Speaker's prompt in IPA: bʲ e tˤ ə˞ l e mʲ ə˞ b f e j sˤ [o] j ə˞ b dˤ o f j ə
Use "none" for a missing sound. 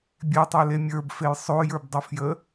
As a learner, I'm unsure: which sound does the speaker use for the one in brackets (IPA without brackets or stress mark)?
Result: o